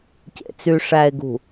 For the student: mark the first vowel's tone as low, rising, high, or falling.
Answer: low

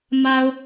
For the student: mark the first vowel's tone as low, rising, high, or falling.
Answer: low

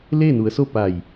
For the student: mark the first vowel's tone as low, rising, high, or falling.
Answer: falling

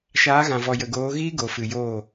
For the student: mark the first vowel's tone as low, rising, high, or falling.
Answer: rising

